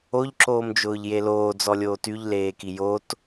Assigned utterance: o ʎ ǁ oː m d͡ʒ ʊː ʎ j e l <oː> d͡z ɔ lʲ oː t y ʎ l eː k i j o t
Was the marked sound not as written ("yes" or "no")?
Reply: no